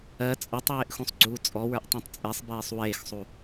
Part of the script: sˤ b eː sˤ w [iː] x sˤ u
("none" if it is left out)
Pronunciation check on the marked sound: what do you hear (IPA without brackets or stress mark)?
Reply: eː